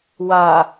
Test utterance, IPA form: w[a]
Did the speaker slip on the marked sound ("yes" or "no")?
no